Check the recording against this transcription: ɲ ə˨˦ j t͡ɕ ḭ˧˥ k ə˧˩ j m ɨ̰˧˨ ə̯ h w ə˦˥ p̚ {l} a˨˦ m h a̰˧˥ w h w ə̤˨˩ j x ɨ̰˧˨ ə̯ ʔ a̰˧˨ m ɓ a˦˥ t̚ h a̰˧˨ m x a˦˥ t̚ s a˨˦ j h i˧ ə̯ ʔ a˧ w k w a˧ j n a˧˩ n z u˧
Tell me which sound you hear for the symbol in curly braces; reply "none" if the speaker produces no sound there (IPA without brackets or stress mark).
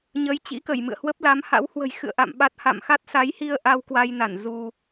l